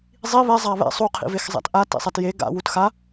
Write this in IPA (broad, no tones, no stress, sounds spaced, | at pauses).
zˤ i β ɛ zˤ a β ɛ̰ sˤ u qʰ ḭ v e x zˤ a̰ t ʔ a t ḭ sˤ ɛ t j e ɡ a̰ w u t x a